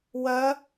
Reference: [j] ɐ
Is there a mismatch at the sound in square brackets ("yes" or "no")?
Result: yes